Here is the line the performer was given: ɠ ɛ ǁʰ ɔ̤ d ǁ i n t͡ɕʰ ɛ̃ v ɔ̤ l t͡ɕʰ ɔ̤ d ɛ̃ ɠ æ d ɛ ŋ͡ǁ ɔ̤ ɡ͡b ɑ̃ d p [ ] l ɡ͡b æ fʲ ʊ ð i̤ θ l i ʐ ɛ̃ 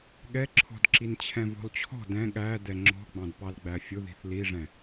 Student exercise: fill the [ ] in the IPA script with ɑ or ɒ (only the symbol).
ɑ